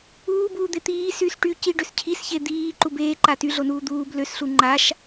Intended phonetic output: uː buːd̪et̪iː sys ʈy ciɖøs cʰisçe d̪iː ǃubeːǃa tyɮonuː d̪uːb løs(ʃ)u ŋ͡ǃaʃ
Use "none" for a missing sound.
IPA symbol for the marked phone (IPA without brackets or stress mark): ɬ